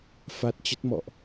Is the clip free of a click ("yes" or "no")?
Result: yes